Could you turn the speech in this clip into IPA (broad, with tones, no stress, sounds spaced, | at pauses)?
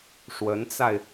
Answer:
ʂ w ə˧˥ n t͡s a˧ ɪ̯